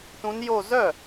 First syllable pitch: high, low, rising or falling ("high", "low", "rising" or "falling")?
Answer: rising